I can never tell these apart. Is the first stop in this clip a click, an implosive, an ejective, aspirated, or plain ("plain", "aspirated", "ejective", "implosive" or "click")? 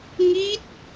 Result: plain